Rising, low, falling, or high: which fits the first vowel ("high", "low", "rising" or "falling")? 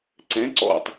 rising